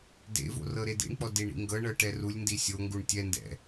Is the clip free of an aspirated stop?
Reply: yes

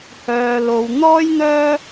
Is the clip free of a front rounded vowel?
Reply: no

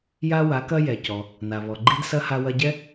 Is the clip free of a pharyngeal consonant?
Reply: yes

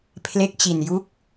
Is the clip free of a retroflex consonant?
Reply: yes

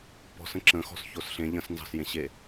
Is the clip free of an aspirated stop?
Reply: yes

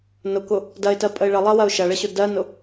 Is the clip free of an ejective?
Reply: no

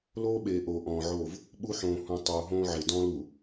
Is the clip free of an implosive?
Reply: no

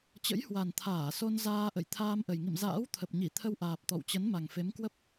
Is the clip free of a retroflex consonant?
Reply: yes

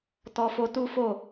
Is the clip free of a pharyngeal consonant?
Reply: yes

